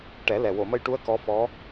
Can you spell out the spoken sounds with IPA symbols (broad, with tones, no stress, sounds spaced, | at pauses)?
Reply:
ʈ ɛ˨˩˦ l ɛ˨˩ w o˨˩˨ m ə˧ j ʈ u˧˥ ə̯ k ɔ˧˥ f ɔ˧˥